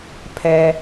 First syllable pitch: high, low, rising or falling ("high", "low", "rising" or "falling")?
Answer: high